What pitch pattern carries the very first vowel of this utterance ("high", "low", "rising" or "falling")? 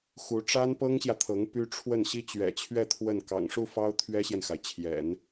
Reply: rising